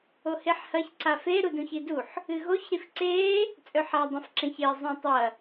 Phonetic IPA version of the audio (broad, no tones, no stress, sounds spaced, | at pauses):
o h e ħ h ɐ ç ǀ a f e ɾ u d ũ ç i d u ħ | ɨ ɣ o ç ɾ i f ǀ eː | t͡sʼ ɵ ħ a dˤ ẽ f ǁ ẽ ç eː zˤ ũ tˤ ɐ